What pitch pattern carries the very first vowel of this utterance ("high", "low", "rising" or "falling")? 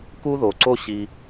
high